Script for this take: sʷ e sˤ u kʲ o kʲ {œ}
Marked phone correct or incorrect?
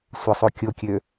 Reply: incorrect: ø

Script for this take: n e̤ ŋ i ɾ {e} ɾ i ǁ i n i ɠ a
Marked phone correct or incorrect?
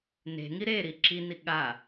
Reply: correct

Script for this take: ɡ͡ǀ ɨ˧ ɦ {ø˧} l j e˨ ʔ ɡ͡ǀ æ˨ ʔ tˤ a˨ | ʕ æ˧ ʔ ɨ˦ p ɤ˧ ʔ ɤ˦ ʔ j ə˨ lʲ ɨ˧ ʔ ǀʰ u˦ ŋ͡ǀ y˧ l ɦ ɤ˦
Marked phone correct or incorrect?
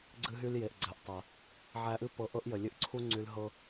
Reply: incorrect: y˧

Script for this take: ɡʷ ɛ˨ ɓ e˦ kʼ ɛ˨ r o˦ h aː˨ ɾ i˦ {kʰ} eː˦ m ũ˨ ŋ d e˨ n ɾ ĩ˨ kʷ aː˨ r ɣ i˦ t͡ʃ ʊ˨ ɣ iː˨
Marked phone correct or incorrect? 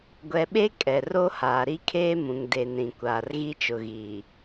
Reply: correct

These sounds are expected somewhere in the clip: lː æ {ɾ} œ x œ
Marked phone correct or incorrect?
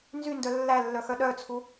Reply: incorrect: lː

